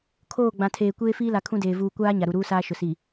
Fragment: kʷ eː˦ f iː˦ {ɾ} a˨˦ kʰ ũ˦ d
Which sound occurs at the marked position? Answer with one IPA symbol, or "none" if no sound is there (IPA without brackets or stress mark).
l